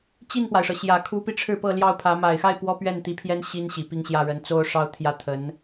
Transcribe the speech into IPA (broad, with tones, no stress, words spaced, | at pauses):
t͡ɕi˥˩npwa˩ɪ̯ʂɤ˩ɕjä˨˩ kʰu˧˥pi˧ ʈ͡ʂʰɻ̩˥˧pɤ˥˧ljɑ˥˩ʊ̯pʰä˧˥ ma˨˩ɪ̯xa˥˩ɪ̯ pwɔ˥pɥɛ˥˩nt̪i˧˥pʰjɛ˥n ɕi˥nɕi˨˩pi˥˧ŋ ɕjä˥˩ɻə˧˥n t͡so˥ʊ̯ʂɑ˥ʊ̯t̪ʰjä˥t̪ʰə˧˥n